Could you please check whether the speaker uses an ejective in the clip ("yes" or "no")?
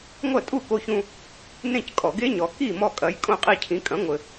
yes